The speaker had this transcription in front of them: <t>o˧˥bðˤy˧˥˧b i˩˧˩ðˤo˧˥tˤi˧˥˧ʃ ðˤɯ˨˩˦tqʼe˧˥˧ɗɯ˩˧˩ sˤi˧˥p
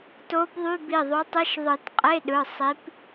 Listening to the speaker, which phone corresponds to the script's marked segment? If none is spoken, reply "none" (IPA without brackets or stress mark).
t